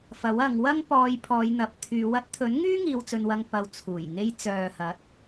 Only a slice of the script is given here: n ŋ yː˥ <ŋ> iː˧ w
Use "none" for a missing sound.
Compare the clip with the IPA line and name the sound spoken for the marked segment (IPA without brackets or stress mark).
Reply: ŋ